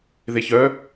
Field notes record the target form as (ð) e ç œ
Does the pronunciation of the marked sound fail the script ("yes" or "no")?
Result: no